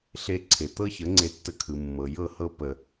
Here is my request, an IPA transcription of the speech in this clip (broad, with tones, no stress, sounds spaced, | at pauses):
ɬ e˧ ǀʰ e˨ t̪ ɤ˦ ç ə˨˦ ŋ͡ǀ e˧ tː ə˧ kʰ ɯ˨ mː ɤ˨ j ɤ˦˨ h ɤ˦ p ə˧